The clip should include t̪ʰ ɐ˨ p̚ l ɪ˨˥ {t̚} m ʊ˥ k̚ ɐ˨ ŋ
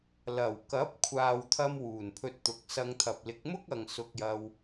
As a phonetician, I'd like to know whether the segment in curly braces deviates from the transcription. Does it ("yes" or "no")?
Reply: yes